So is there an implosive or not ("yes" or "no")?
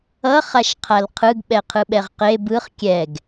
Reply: yes